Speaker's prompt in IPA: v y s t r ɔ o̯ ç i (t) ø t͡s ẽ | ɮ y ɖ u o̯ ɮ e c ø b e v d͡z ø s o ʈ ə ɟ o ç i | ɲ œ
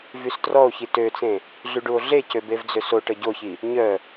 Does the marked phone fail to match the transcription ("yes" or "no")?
no